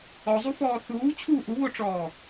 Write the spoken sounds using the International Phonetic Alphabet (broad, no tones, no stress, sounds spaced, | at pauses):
ɔ zˤ u f ɔː θ uː t͡ɕʰ uː ʔ u β o ʈ͡ʂ ɔː